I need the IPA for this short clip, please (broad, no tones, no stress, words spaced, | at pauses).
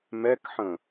mɛkħə̃